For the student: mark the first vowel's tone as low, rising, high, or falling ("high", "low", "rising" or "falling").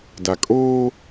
low